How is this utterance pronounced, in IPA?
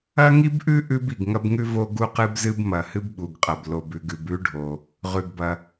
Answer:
ɐ˥ŋi˥bʔʉ˥ ʔʉ˥b i˩ɡŋɐ˥bŋʉ˥ vo˥ɡu˥qɨ˥bzɨ˥b mɐ˩hɨ˥bɓu˩ɡqʼɐ˩b lo˩bʉ˩ɡ ʉ˩bʉ˥ɖʱo˩ | ʁʉ˩ɡbɐ˩

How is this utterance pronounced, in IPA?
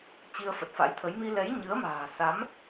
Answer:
t͡ɕi˧ə̯fə˨˩t̚fa̰˧˥jt̪ʰə˨˦j mi˧lɛ˨˦j ɲɨ˨˦ə̯ma̤ː˨˩sa˨˦m

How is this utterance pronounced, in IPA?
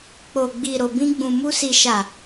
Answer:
k͡po˨ɡ͡bi˨ɾo˨ bĩ˧ɡ͡bũ˨mu˧ si˨ʃa˨

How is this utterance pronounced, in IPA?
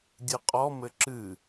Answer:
dʲɨqʼɔ mɘǁɨ

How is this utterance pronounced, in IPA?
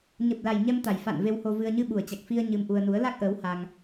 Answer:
ɲə˨˩p̚la˨˩j ɲɛ˧mt̪a˨˩jfa̰˧˨n ve˧who˧vɨ˧ə̯ ɲɨ˧ɓu˨˩ə̯t͡ɕa˨˩k̚fi˧ə̯ ɲɨ˧m ʔu˧ə̯nu˨˦ə̯ la˦˥k̚ʔəː˨˦w ha˧ŋ

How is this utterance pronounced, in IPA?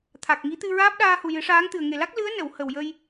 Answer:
t̪ʰa˨˩k̚ŋi˧˥ t̪ɨ˧ɹaː˦˥p̚ɗaː˧ hu˨˩jɨ˨˩˦ʂaː˧˥ŋt̪ɨ˨˩ə̯ ŋe˨˩la˦˥k̚ lɨ˧˥ə̯nə˨˩˨w hə˨˩wjə˧j

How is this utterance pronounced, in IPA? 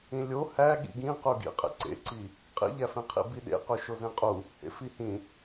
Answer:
ĩlʲo hæ ɠḭɡĩqu ɡḭqʼḛ ǀḛǀi | qʼḭʎæfẽqʰḭ biɗḛqu ʃozẽqʼu | hḛfihĩ

